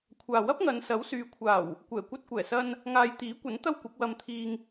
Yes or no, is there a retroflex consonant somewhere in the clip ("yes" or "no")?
no